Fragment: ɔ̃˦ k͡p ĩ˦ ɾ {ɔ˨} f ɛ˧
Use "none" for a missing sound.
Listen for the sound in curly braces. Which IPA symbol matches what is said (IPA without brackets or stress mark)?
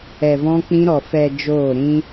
ɔ˧